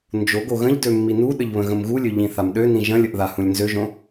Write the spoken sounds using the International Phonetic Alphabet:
n d͡ʒ o ɡ o ɣ ə̃ ʎ d ø mː i n u ɗ ə ʎ β ə̃ ɣ ə̃ m ɣ u lʲ ø ʎ ĩ θ a m ɗ ø n ĩ ʒ ə̃ lʲ ə ʔ ð a h ũ lʲ n z ø ʒ õ

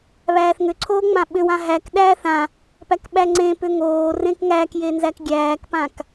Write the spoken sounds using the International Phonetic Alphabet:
β æː θ ŋ ʏ ǀʰ oː ŋ͡m ã ɓ ʏ w ã ɦ æ k ɗ æː θ ã | p æ k ɓ æ ŋ͡ǀ ẽ p ʏ ŋ oː r ẽ k ŋ æ k j e n z æ k ɡʲ æː k p ã k

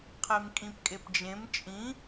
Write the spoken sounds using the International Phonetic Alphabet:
qʰ e m kʼ ĩ p kʼ e p d͡ʒ ẽ m t͡ʃʼ ĩ

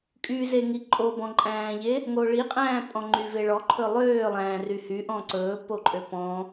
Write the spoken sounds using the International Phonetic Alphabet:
kʼ y z e ŋ i ǃʼ o b ɔ̃ ǃʼ æ̃ː ʎ e | ŋ o ɭ i qʼ æ̃ː pʼ ɔ̃ ŋ͡ǃ y v e ɭ ɔ ǃʰ ɵ lˠ øː lˠ æ̃ː r y h y ʔ ɔ̃ ǀ ɵː p o ǃʼ ø p ɔ̃

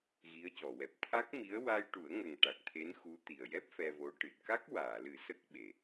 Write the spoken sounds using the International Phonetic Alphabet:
ɣ i˧˥ ə̯ c ɔ˨˩˨ w ɛ˨˩ p̚ t̪ʰ a˦˥ k̚ m i˧˥ ə̯ w a˧ j ʈ u˨˩˦ ə̯ ŋ ə˨˩ ŋ ʈ a˨˩ k̚ t̪ʰ e˧˥ n x u˧˥ t̪ i˨˩ ə̯ j ɛ˦˥ p̚ f ɛ˧ v o˧˥ ʈ ɨ˨˩ t̚ k a˦˥ k̚ w aː˨˩˨ l ɨ˨˩˦ s ə˦˥ k̚ ɓ e˨˩

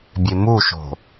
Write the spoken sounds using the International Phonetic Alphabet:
bʲ e m u ʃ o̤

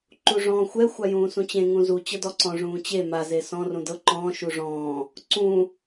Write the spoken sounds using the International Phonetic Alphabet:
ǃ u ʐ ɔ̃ː xʷ ɛ xʷ a j ũː s ũ t͡ɕ ẽ ŋ ũ z u t͡ɕ ɤ d ɔ ǀ ɔ̃ ʐ ũː t͡ɕ e m a z e s ɔ̃ r ũ d ɤ ǃ ɔ̃ː ʃ u ʐ ɔ̃ː | ǀ ũ

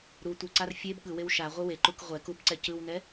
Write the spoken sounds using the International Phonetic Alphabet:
ɾ u tʷ ɯ ǀ a r fʲ e b ɠ ɯ w e w ʃ a ʁʷ ɯ w e ǃ u k ʁʷ ɛ k u b ǀ ɛ c ɯ w n ɛ

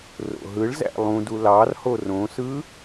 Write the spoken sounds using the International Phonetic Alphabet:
r o̰ ɦ ɯ ɭ z æ̰ lˠ ũ d u l ɑ r h o r õ s ɯ

